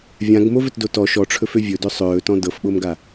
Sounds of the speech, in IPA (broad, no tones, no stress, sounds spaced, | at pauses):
vʲ ã ɡ m o v ɵ t d o t ɔ ʃ ɔ ʈ͡ʂʰ ɵ f ø vʲ ɵ d ɵ sˤ ɵː t ɔ̃ d ɤ f ɓ o m ɡ a